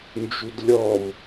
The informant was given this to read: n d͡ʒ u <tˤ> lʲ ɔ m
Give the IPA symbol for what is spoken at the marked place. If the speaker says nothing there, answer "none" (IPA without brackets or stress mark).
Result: d